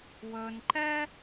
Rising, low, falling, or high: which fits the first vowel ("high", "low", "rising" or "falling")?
low